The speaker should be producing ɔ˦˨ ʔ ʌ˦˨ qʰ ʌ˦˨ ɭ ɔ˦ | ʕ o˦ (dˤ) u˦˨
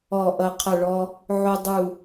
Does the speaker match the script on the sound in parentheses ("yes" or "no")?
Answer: yes